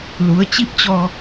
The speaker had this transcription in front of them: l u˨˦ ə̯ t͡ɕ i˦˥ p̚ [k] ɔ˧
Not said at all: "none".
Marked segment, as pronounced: t͡ɕ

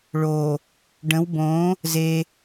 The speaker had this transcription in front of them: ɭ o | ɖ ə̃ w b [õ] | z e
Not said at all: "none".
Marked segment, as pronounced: õ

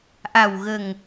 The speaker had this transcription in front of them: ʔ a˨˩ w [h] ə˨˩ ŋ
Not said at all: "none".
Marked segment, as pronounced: ɣ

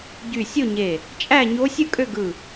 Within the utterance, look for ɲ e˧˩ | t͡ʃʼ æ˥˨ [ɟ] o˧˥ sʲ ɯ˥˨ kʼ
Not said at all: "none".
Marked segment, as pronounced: ɲ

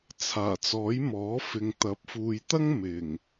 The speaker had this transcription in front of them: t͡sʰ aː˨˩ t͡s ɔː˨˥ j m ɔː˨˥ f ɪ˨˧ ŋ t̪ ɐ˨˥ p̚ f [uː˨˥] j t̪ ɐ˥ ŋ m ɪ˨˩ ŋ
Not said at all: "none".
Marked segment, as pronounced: uː˨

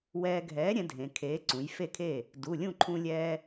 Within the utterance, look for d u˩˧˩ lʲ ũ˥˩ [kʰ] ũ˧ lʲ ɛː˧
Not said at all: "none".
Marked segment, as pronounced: ǃʰ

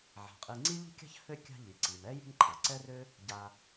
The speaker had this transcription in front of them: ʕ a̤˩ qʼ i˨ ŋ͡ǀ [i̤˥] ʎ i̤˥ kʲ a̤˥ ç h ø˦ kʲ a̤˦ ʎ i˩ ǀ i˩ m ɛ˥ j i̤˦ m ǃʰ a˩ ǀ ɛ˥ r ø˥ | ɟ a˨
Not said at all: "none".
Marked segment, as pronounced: i˥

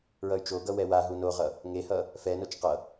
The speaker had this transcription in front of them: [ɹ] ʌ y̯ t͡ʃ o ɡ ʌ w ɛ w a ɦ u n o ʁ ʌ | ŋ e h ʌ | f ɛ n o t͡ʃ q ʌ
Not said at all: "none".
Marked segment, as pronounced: ɹ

